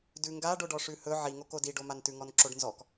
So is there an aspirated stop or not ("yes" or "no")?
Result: no